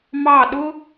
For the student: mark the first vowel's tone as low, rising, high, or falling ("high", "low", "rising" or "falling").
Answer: falling